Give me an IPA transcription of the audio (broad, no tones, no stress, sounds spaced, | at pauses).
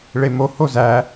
ɭ e m o h o z æ